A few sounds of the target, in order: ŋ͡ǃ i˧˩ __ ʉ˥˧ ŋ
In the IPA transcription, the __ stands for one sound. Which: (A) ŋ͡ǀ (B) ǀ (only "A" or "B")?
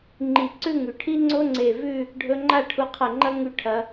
B